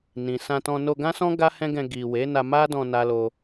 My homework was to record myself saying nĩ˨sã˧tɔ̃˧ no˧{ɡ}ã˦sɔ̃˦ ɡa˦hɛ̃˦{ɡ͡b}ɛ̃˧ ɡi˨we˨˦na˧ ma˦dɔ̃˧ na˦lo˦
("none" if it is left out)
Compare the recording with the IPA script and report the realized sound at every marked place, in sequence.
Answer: ɡ, ɡ

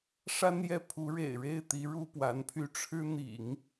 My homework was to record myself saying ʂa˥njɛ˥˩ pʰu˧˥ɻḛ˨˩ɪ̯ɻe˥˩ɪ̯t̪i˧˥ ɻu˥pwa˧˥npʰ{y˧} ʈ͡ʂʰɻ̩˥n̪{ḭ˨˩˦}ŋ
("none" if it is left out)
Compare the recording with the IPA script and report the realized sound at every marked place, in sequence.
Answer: y˥, ḭ˨˩˦

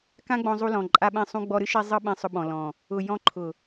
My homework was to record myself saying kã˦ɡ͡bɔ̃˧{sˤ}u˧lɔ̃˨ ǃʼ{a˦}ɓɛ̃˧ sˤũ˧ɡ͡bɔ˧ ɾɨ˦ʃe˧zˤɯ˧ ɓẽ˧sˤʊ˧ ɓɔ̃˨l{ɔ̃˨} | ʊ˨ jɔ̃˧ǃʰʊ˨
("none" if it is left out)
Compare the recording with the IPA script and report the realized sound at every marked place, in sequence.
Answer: zˤ, a˧, ɔ̃˨

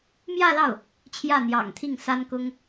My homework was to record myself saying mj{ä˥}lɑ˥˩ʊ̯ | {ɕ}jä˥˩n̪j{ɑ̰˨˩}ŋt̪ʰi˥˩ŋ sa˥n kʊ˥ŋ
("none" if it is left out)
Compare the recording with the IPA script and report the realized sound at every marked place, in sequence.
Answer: ä˥˧, t͡ɕʰ, ɑ̰˨˩

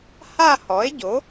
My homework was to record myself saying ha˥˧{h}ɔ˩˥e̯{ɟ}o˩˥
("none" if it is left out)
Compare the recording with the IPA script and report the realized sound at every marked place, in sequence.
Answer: h, ɟ

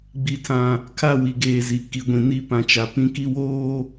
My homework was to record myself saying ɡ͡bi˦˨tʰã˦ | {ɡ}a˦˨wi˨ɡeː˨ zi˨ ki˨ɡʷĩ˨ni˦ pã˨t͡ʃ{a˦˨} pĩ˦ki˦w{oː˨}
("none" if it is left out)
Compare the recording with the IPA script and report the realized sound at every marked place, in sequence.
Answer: kʰ, a˨, oː˦

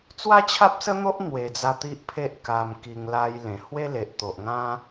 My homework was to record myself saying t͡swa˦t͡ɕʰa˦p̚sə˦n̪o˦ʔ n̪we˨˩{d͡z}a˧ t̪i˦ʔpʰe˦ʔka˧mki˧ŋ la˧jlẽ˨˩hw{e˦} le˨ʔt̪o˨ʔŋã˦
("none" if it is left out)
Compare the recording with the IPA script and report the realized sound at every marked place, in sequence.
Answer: d͡z, e˦

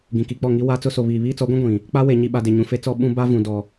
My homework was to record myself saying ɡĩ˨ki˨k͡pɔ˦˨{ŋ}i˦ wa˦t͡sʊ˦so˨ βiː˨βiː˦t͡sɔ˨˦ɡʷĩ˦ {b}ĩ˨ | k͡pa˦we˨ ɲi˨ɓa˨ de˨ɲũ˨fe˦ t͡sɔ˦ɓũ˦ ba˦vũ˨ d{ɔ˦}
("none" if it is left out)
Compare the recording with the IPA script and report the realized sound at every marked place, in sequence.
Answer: ŋ, ɡʷ, ɔ˨

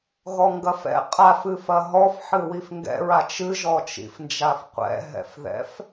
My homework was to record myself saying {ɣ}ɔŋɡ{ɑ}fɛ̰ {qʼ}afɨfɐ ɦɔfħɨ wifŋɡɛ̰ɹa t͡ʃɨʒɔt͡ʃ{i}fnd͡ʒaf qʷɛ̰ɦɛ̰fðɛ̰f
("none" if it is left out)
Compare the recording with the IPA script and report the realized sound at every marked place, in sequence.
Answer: ɣ, ɐ, qʼ, ḭ

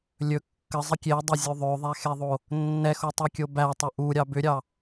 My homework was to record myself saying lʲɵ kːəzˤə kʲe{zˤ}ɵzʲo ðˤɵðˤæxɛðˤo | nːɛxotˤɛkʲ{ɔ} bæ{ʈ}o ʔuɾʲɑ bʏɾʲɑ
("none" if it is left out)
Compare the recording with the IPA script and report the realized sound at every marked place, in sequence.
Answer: dˤ, o, tˤ

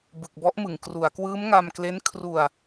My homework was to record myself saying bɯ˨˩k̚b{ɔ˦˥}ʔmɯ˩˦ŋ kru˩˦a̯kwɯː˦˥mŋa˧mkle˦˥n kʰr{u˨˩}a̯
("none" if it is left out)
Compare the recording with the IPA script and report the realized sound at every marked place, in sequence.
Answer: ɔ˦˥, u˧

